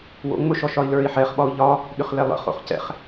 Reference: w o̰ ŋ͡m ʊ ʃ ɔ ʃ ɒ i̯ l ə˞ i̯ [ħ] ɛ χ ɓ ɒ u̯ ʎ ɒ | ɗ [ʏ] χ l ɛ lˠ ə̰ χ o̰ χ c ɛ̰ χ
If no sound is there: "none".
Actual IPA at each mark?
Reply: ħ, ʏ

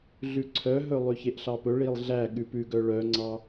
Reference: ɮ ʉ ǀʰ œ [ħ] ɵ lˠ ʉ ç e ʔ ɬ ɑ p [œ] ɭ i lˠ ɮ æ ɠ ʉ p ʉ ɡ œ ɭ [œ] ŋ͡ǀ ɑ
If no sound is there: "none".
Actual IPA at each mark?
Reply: ɦ, ɵ, œ

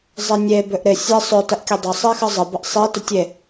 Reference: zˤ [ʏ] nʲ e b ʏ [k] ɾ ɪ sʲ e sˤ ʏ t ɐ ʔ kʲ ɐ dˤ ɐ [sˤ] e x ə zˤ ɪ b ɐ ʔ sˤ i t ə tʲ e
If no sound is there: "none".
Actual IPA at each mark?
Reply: ɪ, ʔ, sˤ

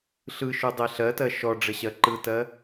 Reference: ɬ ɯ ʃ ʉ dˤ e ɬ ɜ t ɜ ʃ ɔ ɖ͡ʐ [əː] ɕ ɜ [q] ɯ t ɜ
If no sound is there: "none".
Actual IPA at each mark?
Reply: ə, ǃ

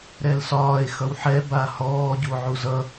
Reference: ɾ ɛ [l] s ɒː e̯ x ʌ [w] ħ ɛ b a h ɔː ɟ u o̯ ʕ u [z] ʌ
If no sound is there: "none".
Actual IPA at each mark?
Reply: l, w, z

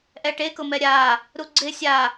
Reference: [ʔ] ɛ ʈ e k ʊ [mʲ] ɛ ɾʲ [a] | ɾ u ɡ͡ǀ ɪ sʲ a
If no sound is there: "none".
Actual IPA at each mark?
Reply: ʔ, m, a

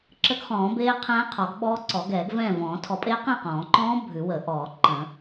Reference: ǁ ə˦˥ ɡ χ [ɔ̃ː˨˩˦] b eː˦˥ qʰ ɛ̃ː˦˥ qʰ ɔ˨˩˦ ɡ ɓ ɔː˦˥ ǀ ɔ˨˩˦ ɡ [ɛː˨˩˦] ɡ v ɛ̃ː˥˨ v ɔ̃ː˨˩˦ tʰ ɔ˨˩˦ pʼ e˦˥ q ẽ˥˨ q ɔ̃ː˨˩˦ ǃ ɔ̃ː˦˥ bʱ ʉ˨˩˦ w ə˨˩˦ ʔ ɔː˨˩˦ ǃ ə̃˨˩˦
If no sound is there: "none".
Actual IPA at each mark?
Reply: ɔ̃ː˨˩˦, ɛː˨˩˦

